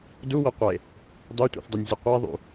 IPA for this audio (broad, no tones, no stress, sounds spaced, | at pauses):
d u w ɐ qʷ ɐ e̯ | dˤ o tʷ ḛ θ dˤ o nʲ zʲ ʉ qʷ a ðˤ ṵ